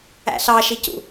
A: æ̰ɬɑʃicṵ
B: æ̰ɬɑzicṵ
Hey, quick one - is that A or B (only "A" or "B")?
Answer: A